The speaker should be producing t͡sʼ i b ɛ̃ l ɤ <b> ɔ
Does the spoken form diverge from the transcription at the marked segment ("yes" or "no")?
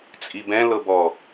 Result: no